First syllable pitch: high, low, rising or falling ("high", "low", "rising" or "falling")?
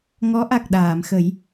rising